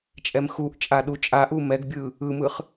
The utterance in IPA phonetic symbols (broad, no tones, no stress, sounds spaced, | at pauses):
t͡ʃʼ ɛ m x u ʔ t͡ʃʼ a ɗ u t͡ʃʼ a ʔ u m ɛ ɡ bʲ ɯ | ɯ m ɯ χ